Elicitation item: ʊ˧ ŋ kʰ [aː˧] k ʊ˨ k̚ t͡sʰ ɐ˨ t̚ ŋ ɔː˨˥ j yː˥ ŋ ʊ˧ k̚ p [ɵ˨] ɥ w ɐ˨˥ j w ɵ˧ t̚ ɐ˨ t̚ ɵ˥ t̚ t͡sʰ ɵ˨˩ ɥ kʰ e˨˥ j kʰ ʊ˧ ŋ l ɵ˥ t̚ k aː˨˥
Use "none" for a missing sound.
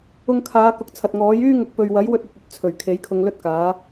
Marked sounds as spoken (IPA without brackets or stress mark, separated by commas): aː˨˧, ɵ˨